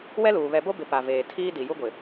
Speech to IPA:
w ɛ˦ l uː˨ β ɛ˨ b o˦ b ɪ˨ p a˨ v eː˨ tʰ iː˦ d i˨ j u˦ ɡʷ ɪ˨

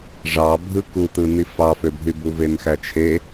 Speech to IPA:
ʐ ɑ bʱ ɯ k u t̪ ɯ n̪ i f ɑ f ø bʱ y b u v e n x æ t͡ʃʰ e

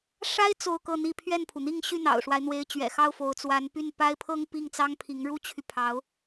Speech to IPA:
ʂ a˥ ɪ̯ t͡s o˥˧ ʊ̯ k ɤ˥˧ n̪ i˥˧ pʰ ɥ ɛ˥˩ n pʰ u˩ n̪ i˥˧ ŋ ɕ y˥˩ n̪ ɑ̰˨˩ ʊ̯ ʂ w a˦ ɪ̯ n̪ w e˧˥ ɪ̯ t͡ɕ ɥ ɛ̰˨˩ x ɑ˥˩ ʊ̯ f o˧˥ ʊ̯ t͡s w a˧˥ n p y˥˩ n p a˥ ɪ̯ pʰ ɤ˥ ŋ p i˥˩ ŋ t͡s ɑ˥ ŋ pʰ i˧˥ ŋ ɻ u˥ t͡ɕʰ y˨ pʰ ɑ˧˥ ʊ̯

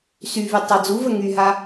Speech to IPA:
s y v y tˤ a d͡z u v ə ŋ y ɦ a

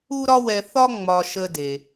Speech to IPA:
u˥ ɾ ɒ˥ w ɛ˧ θ ɒ˥ ŋ͡m ɒ˧ ʃ ə˧ d e˩

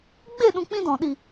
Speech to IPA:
ɡ͡b e˦˨ ɗ ũ˧ k͡p ĩ˦ d ɔ̃˨ ɗ i˨

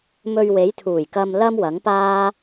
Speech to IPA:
m ɵ˧ ɥ w e˨˥ j t̪ʰ uː˨˩ j k ɐ˧ m l ɐ˥ m w ɐ˨˥ ŋ p aː˥

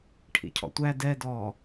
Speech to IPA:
ʈʰ ḭ cʰ ɔ̰ tʷ æ d ɛ d ɔː

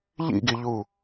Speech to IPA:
ʎ ḭ ɡ i ʎ u

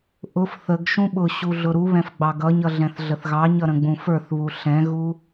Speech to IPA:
ʔ ʊ f θ ə ɡ ʃ ũ ɓ ʊ ɕ u ɮ ʊ ɾ u β ɛ̃ f ɡ͡b ɑ ɡ ʌ ɲ ʌ ɮ ɛ̃ θ ɮ ə θ ɣ ɑ ɲ ʌ ɾ ə̃ ɡ͡b ũ f ə˞ θ β u ɬ ɛ̃ ɣ u

